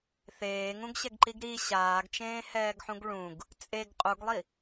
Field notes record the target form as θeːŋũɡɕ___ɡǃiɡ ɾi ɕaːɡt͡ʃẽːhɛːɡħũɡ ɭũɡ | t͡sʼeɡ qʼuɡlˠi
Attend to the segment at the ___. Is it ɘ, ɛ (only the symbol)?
ɛ